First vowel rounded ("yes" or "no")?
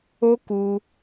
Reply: yes